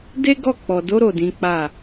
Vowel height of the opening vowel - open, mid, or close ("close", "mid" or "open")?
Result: mid